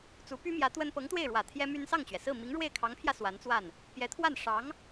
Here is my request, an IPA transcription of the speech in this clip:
t͡su˧˥py˥mjä˧˥ t̪wə˥n pɤ˧˥ŋt̪we˥˩ɪ̯ɻwä˨˩ t̪ʰjɛ˥my˥n sɑ˥˩ŋt͡ɕɥɛ˩sɹ̩˥˩ mi˧˥ŋɻwe˥˩ɪ̯kʰɑ˧˥ŋpʰjä˧ swa˧˥nt͡swa˥˩n | pjɛ˧˥t̪ʰwa˥˩n ʂɑ˧˥ŋ

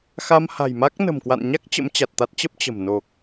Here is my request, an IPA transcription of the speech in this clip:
xa˧mha̤˨˩jma˦˥k̚ nə̤˨˩mkwa̰˧˨nɲa˦˥k̚ t͡ɕə̰˧˥mt͡ɕa˨˩t̚t̪a˦˥t̚t͡ɕə˦˥p̚ t͡ɕə̤˨˩m no˨˩k̚

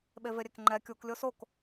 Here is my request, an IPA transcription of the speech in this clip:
ɓeveɾʲekŋ͡ǃɛ kʲuk lʲosok

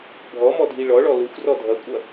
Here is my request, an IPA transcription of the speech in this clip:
bʱɔmɔ dʱiɭɔɭɔ lʊxʷrɔ dʱʌkʷʼʌ

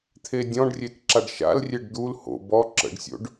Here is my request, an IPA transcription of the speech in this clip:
t̪ʰedʲɔ̃ɖrʲet ǁaɖʃa̰lrʲeɖ d̪ul ho̰ bɔ ǁə̰ɖsʲo̰ɖ

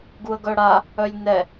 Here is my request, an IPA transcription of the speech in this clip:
ɡuə̯ɡœɽa | œlʲnɛ

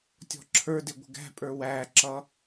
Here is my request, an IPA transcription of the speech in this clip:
tʲɔ̤ǁʰə˞dɪ ɡʷə̤ɡæ̤pʼə˞ wæǁʌ

